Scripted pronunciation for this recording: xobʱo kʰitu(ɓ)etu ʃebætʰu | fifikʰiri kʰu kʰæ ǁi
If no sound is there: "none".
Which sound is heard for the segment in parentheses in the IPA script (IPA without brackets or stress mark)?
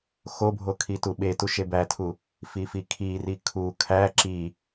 ɓ